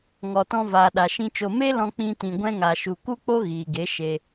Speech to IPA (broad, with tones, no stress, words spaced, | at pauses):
ŋɔ˨tɔ̃˧vaː˨ ɗa˨ʃĩ˧t͡ʃo˧ me˦lɔ̃˧ k͡pĩ˧ tĩ˨ɡʷɛ̃˧ŋa˨ʃu˨ ku˦k͡po˦ ɣiː˨ɡe˨˦ ʃe˧